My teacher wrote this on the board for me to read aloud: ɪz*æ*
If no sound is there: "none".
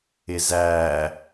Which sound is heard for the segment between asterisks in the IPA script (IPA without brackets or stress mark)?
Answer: æ